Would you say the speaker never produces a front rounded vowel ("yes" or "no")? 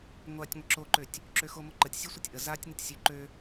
no